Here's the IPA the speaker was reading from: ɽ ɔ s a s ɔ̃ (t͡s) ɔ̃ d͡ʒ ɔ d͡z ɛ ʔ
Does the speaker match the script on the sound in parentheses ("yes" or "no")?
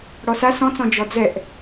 yes